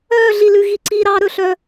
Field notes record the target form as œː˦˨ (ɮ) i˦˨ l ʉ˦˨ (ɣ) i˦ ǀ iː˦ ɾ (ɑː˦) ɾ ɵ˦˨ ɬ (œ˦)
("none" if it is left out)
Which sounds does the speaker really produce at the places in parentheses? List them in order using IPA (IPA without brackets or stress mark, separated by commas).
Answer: ɮ, ɣ, ɑː˦, œ˦